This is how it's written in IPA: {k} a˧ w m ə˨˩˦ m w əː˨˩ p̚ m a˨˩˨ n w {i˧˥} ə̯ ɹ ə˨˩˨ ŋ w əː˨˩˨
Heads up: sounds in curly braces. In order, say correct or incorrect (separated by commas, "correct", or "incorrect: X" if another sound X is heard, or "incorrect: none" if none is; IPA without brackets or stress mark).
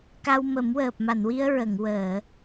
correct, incorrect: i˧